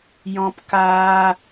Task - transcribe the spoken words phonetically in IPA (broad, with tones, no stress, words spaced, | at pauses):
jɔ̃˦pkaː˦